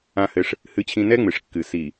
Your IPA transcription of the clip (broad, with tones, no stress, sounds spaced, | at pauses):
ã˦ h ɘ˦ ʂ | h ɨ˦ t͡ɕʰ ĩ˦ n ɛ˦ ŋ͡m ɨ˨ ʂ kː ɨ˨ s i˨